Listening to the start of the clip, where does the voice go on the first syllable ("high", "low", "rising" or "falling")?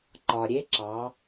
low